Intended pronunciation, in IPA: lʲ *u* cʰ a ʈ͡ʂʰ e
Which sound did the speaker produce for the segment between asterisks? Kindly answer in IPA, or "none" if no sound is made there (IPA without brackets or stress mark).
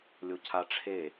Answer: o